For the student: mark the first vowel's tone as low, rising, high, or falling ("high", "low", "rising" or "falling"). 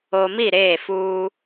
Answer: low